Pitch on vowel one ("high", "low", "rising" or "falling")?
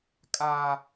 high